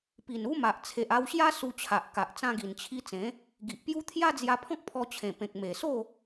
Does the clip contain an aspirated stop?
yes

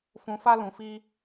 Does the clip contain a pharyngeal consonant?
no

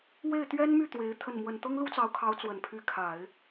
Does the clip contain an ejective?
no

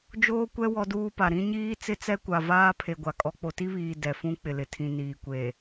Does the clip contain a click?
no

